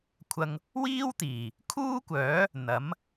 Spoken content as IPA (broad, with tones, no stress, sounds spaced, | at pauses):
kʷʰ ɐ˧ ŋ | w iː˥ w t̪ iː˨˩ | kʰ uː˥ kʷ œː˨˥ | n̪ ɐ˨˥ m